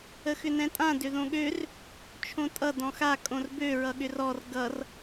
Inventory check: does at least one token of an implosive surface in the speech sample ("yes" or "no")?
yes